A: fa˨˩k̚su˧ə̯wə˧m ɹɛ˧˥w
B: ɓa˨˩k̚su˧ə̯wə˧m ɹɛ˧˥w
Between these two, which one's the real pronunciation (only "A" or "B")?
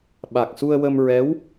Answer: B